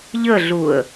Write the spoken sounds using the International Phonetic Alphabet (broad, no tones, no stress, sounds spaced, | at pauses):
ʎ ə ɮ u ə̯